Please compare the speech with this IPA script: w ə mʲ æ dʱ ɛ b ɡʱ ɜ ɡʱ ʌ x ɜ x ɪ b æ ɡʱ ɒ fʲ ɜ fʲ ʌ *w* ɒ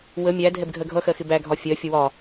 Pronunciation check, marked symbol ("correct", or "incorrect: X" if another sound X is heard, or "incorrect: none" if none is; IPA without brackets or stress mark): correct